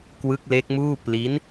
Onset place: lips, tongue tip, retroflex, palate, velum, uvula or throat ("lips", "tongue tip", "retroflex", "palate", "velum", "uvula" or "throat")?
velum